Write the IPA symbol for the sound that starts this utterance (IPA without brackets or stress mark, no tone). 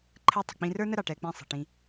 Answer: ǃʰ